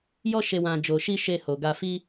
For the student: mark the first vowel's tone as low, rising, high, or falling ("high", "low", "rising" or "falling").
high